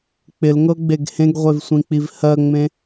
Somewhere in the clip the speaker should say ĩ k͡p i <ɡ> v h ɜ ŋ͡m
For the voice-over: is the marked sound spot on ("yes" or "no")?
no